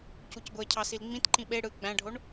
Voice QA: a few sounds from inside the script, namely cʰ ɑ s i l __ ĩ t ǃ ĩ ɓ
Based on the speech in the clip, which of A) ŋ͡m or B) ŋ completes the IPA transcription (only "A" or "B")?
A